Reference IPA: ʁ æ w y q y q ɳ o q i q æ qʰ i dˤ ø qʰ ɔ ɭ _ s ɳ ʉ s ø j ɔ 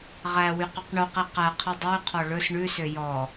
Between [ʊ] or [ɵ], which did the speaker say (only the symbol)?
ɵ